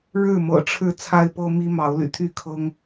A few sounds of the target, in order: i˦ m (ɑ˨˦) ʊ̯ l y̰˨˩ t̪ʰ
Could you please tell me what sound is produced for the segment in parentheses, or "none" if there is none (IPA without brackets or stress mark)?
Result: ɑ˨˦